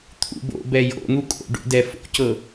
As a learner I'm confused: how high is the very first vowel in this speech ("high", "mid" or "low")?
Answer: high